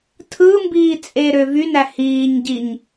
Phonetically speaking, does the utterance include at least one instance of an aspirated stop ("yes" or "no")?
yes